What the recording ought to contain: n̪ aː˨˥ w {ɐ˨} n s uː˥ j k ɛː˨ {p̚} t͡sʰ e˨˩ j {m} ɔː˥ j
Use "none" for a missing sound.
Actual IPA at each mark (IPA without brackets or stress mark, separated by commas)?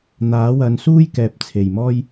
ɐ˨˧, p̚, m